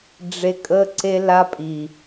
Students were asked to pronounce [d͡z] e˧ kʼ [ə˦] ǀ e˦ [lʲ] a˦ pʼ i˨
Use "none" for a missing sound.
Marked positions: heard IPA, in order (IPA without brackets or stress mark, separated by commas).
ɖ͡ʐ, ə˦, l